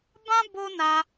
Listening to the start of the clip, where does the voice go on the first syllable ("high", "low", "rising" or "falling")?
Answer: high